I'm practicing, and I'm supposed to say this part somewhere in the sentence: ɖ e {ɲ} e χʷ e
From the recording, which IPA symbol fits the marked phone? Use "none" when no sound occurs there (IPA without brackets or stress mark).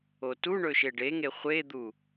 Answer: ŋ